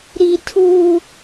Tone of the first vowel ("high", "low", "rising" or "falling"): high